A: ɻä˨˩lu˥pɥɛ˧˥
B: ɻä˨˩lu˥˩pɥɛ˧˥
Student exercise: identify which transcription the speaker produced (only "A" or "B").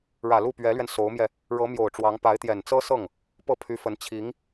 B